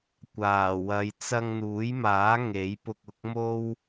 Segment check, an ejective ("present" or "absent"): absent